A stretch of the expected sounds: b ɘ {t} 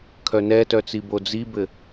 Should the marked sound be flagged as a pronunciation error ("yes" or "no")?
yes